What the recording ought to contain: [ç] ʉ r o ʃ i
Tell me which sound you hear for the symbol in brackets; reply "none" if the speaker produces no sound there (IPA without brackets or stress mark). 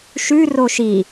ʃ